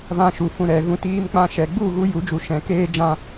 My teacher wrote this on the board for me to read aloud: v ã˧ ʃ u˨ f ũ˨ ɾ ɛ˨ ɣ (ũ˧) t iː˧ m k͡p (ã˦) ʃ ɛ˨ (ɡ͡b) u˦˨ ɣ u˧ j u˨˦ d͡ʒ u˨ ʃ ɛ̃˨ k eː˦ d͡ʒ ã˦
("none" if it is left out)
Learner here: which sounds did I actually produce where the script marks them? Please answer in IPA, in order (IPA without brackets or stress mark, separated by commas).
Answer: ũ˧, ã˧, ɡ͡b